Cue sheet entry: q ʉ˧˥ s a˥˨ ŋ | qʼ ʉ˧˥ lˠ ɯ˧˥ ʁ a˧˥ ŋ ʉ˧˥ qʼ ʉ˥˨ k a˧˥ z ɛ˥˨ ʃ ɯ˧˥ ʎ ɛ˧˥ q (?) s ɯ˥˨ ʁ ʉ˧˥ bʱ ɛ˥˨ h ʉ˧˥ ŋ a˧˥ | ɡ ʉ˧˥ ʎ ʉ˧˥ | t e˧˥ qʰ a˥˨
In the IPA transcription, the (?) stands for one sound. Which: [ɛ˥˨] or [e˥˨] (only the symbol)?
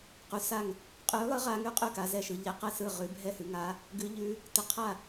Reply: ɛ˥˨